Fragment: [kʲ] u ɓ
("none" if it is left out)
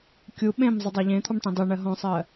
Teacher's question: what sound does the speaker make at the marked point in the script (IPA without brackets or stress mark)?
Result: kʲ